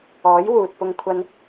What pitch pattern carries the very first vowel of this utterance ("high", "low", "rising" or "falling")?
rising